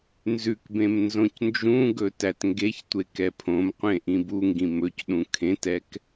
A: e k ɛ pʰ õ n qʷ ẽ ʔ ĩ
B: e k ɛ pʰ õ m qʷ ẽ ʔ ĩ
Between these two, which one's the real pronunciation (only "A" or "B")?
B